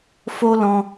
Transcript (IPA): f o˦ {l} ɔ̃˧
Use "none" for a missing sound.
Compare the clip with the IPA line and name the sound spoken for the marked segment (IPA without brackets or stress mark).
l